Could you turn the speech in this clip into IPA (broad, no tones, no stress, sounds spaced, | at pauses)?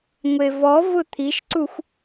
ŋʷ e v ɔ v ʊ t̪ʰ i ʃ ǀ u xʷ